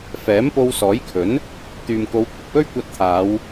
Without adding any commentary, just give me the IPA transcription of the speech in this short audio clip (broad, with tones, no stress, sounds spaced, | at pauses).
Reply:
f ɛː˨˥ m p o˧ w s ɔː˨˥ j kʰ ɵ˨˥ n | t̪ yː˨ m k o˨˧ w kʷʰ ɪ˨ k̚ w ɵ˥ ɥ kʷ ɐ˧ t̚ t̪ʰ aː˨˧ w